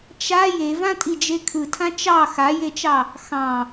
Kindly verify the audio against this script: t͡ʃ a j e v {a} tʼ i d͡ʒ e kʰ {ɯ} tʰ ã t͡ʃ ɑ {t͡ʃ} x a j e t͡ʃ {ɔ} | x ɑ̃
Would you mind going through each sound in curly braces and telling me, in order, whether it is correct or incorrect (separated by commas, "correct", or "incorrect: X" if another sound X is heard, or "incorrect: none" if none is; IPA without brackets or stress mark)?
incorrect: ã, correct, incorrect: none, incorrect: ɑ